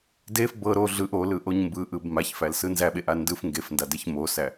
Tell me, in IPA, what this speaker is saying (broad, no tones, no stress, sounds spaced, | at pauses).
d e f b ɤ ɾ o ɮ ɯ ʔ o l ɯ ʔ o ɲ m b ɯ ʔ ɯ b m a ç f æ l s ɯ n z æ ɓ e ʔ a n d ɯ f ŋ ɡ e f n d a d e ç m o s æ